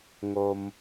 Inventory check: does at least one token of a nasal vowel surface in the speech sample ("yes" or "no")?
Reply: no